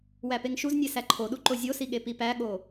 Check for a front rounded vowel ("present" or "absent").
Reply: absent